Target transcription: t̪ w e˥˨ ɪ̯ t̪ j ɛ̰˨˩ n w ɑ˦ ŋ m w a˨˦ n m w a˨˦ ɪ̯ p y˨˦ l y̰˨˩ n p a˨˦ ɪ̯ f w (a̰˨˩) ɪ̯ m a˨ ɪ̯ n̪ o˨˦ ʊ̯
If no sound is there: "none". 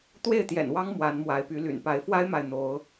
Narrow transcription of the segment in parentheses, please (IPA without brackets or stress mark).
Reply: a˦